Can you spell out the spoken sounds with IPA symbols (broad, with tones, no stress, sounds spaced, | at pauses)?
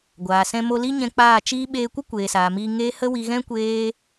ɡʷ aː˨ s ɛ̃˧ m o˧ l i˦ ɲ ɛ̃˧ k͡p aː˦˨ t͡ʃ iː˦ ɓ eː˧ kʷ ə˦ kʷ eː˨ s aː˨ m iː˧ ŋ eː˦ h ə˦ w i˧ ɣ ɛ̃˦ kʷ eː˦